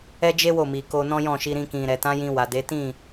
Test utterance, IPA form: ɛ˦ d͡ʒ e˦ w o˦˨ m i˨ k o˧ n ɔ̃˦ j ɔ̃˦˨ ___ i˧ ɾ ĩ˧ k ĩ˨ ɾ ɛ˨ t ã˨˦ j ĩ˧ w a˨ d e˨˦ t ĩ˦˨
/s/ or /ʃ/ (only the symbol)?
ʃ